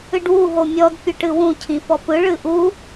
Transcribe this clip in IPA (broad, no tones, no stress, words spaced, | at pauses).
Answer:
ɨɖwu ɦomʲɔd pʲɵʈɨwũ cʰĩfɔpɯ ɭɨʔu